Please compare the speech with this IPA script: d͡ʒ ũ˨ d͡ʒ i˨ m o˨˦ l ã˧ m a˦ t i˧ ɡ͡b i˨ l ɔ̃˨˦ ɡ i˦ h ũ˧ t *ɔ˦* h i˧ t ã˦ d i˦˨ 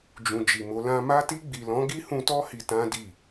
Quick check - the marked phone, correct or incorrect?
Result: correct